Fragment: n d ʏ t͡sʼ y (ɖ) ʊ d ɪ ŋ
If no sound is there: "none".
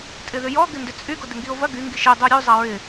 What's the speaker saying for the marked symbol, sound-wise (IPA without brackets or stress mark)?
ɡ